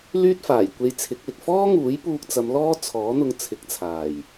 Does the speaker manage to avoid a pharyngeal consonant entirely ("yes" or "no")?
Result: yes